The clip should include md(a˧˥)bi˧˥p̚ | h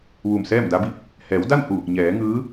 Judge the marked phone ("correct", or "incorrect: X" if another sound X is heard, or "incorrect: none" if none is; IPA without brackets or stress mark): correct